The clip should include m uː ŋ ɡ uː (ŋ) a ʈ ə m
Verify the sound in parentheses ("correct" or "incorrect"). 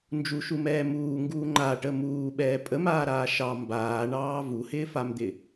incorrect